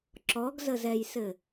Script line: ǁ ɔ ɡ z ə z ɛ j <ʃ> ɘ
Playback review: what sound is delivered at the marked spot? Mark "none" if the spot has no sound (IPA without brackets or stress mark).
s